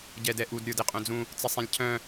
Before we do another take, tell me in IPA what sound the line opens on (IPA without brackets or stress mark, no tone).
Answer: ɟ